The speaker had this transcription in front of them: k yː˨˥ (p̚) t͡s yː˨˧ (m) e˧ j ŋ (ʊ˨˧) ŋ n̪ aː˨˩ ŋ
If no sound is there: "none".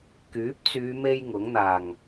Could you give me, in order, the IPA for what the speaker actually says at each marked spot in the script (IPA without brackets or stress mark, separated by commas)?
p̚, m, ʊ˨˥